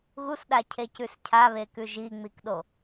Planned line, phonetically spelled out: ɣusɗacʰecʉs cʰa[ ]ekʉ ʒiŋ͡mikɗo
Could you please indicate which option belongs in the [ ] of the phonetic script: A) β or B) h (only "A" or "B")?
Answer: A